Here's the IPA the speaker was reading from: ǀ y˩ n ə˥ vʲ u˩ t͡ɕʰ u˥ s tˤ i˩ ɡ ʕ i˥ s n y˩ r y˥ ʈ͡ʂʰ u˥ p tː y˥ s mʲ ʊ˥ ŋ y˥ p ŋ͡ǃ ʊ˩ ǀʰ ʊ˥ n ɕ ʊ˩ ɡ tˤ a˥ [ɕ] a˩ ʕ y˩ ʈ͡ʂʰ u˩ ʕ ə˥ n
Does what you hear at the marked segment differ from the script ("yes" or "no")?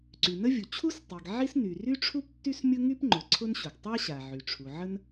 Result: no